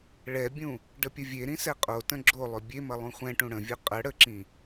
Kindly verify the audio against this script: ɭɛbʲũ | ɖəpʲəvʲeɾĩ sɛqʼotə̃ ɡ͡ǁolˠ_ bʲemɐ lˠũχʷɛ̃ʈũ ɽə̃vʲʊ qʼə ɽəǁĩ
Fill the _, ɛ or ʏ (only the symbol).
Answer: ʏ